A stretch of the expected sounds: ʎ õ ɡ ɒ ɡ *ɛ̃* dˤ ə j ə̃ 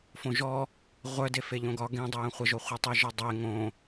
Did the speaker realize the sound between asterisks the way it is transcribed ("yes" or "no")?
no